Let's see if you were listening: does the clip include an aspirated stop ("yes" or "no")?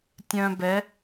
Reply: no